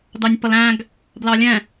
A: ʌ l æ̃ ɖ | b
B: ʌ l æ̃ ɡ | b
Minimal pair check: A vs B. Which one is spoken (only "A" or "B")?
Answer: B